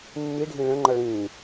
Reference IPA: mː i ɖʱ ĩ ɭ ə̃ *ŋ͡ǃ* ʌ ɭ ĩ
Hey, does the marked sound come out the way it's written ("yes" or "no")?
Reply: yes